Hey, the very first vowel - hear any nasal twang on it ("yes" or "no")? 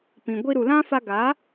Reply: yes